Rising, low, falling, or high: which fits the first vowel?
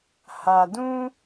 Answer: low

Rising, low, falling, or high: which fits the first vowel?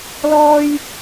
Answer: high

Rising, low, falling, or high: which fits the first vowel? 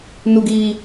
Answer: low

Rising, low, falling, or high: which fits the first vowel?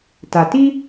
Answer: low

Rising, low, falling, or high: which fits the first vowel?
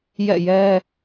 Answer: falling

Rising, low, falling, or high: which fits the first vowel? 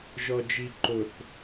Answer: low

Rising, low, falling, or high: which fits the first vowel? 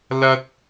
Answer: high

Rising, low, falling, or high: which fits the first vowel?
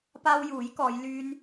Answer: high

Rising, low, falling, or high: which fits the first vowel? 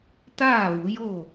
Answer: falling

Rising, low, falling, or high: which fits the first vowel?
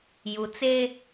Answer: low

